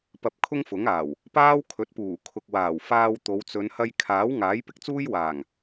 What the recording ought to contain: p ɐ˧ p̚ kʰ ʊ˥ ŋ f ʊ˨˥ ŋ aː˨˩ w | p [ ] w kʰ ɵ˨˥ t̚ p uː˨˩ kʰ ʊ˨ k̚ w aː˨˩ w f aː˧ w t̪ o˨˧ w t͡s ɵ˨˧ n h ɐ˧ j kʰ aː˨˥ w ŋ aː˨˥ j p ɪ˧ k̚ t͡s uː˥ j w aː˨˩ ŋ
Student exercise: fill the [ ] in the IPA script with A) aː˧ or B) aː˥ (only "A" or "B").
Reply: B